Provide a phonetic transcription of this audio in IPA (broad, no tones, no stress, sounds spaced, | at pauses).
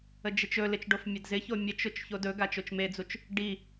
ə d͡ʒ ɪ t͡ʃ ɵ l ɪ t͡ʃ ɖ o f mʲ a d z ɪ ç o mʲ ə t͡ʃ ʊ t͡ʃ ç o d ɵ ɡ a t͡ʃ o t͡ʃ m e d͡z u t͡ʃ | ɖ i